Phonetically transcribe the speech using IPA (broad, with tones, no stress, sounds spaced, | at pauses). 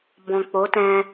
b ɔ̃˨ k͡p o˨˦ t ɛ̃˧